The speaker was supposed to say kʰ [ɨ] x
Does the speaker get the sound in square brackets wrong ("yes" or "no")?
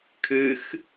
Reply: no